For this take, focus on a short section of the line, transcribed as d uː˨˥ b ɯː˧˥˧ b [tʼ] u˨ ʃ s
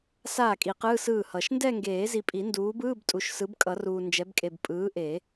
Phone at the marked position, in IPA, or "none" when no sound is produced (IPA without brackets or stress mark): tʼ